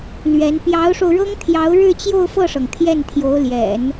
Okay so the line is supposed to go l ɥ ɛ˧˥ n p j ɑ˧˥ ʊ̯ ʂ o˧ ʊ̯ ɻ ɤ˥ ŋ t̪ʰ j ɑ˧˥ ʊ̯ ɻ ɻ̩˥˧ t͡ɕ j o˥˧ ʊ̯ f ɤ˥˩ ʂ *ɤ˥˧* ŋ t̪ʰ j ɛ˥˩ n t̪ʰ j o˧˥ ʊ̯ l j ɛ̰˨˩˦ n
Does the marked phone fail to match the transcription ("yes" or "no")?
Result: yes